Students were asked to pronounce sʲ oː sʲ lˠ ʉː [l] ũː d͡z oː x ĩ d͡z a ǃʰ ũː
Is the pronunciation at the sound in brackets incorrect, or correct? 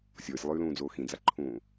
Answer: correct